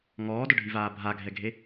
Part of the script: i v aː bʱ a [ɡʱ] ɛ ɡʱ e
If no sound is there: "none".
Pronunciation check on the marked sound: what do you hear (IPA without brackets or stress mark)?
ɡʱ